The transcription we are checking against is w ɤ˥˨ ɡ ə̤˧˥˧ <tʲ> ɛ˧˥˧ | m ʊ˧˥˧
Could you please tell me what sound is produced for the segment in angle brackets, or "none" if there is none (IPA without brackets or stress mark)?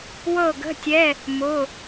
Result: tʲ